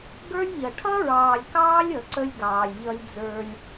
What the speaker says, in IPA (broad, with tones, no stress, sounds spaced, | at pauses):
ɡ ə˞˦ lʲ ʎ ʌ˨ ʈʰ ʌ˦ ɹ ɑː˨ lʲ k ɑː˦ lʲ ʌ˨ ǀ ə˦ lʲ ɡ ɑː˨ lʲ ʎ ʌ˦ lʲ d͡z ə˞˦ lʲ